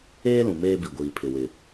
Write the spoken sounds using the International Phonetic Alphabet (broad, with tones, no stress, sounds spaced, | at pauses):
eː˦ l ũ˨ m eː˦ b i˨ ɡʷ iː˨ pʰ ɪ˨ w ɪ˨